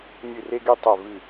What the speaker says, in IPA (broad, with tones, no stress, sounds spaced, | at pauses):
nʲ ɨ˥˧ r e˥ ɡ i˥ tˤ ɛ˥˧ v ɨ˥˧